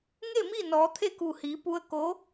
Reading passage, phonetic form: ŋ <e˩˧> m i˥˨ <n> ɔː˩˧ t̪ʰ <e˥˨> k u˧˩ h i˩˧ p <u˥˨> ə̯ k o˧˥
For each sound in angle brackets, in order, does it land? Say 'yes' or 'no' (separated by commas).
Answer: no, yes, yes, no